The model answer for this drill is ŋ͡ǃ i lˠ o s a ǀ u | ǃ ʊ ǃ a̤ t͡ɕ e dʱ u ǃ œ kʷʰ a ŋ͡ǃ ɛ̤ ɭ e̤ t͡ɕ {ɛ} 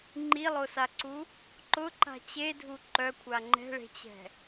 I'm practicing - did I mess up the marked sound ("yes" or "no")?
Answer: yes